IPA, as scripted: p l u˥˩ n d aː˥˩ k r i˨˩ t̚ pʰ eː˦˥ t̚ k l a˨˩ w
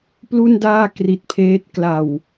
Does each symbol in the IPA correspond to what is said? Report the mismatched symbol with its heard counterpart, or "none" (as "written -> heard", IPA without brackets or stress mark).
none